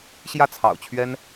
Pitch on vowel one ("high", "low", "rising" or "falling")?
falling